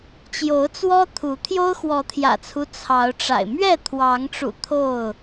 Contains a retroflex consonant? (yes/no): yes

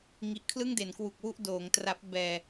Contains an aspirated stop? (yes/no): yes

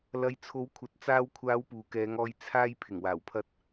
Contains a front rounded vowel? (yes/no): no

